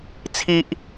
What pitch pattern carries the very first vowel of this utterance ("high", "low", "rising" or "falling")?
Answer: high